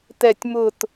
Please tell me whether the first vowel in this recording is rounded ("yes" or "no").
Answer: no